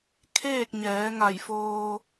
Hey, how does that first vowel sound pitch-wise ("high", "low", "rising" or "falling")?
falling